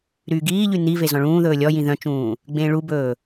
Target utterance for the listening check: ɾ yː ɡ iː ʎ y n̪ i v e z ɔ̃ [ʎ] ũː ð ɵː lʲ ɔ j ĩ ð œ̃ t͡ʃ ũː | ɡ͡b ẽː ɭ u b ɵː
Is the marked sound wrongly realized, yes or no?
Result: yes